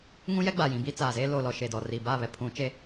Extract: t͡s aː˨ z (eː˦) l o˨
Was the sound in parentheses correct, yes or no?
yes